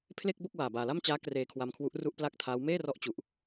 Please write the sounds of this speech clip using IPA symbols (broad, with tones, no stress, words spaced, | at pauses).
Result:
pʰle˥˩k̚bo˥˩k̚ waː˨˩baː˨˩la˥˩mt͡ɕaː˦˥ kreː˧kʰwa˧mkʰwu˦˥ʔ ru˥˩ʔpla˥˩k̚tʰa˦˥w meː˥˩rɔ˦˥ʔt͡ɕu˨˩ʔ